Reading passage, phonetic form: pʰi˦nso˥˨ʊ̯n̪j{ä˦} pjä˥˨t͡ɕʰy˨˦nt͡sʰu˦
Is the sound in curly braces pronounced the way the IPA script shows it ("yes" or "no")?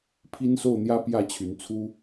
yes